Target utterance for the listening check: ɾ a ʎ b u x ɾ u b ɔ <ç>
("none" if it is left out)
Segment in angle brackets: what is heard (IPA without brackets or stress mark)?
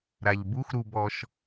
ʃ